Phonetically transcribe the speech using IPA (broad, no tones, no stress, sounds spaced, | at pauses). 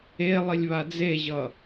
e lˠ i lʲ β a d͡z e ʑ ʌ